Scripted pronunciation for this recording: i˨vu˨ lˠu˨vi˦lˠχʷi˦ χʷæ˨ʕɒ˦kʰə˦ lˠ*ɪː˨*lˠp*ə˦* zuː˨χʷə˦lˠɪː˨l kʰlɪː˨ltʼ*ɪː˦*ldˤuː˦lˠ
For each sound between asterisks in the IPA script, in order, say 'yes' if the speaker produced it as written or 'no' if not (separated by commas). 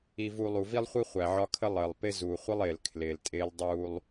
no, no, yes